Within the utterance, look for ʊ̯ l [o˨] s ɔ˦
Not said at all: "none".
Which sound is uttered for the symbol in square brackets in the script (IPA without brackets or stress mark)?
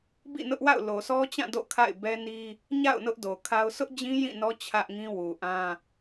o˨